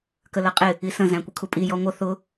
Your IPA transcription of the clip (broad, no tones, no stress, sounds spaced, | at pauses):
k ə l ʌ qʼ ɪ | i s ə̃ z æ̃ kʷ ə kʰ u pʼ i j ɔ ŋʷ ʌ θ ʊ